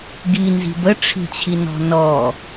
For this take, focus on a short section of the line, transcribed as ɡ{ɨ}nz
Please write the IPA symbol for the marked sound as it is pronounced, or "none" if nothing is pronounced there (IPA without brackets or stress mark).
i